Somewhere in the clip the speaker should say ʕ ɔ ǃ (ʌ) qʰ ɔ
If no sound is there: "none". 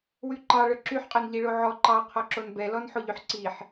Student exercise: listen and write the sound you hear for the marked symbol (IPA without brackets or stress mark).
ɑ